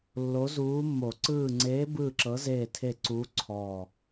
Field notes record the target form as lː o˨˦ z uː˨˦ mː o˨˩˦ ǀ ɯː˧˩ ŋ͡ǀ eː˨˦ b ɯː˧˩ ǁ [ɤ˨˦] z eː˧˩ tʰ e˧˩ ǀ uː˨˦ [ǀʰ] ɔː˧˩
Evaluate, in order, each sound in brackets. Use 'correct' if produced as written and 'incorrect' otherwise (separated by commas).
correct, correct